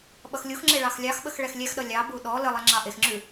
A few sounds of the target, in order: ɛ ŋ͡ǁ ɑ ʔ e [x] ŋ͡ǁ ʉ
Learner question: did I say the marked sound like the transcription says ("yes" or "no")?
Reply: yes